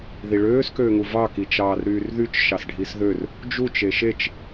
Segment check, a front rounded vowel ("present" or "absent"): present